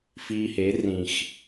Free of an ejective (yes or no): yes